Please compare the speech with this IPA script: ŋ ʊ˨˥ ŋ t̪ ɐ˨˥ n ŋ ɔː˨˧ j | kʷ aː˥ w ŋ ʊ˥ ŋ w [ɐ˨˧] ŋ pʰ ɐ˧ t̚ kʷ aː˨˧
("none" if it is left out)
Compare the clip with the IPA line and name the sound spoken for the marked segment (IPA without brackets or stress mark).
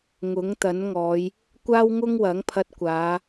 ɐ˨˥